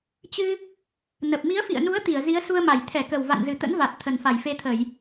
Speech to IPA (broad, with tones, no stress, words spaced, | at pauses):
t͡ɕɨ˧ | nə˨˩p̚ mi˨˦ə̯fḭ˧˨ə̯nu˨˦ə̯ t̪i˧˩ə̯zi˨˦ə̯su˧ə̯ma˧˩j t̪ʰɛ˧˩kə˨˩wva̰˧˨nzɨ˨˩ t̪ə̰˧˥nva˨˩t̚ t̪ʰə˨˩n fa˧˩jfe˧t̪ʰə˧˩˨j